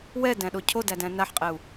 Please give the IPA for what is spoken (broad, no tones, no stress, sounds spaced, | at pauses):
w ɛ d æ̃ ɗ o cʰ o d æ d æ̃ n a ħ qʼ ɛ u̯